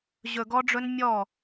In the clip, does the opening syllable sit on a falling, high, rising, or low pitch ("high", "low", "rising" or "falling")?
low